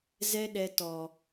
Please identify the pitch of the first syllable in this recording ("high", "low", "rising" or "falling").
high